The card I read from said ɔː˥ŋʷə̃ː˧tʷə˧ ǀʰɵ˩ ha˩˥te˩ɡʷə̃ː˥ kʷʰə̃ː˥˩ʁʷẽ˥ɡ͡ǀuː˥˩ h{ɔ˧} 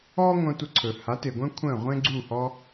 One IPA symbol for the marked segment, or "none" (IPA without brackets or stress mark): ɔ˧